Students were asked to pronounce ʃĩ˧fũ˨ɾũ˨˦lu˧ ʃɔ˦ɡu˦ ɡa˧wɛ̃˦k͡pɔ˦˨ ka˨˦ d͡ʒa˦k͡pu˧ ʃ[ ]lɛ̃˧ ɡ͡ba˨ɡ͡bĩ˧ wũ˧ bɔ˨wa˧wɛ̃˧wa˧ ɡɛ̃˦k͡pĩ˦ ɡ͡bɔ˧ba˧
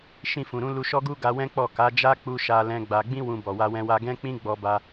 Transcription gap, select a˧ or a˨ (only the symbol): a˧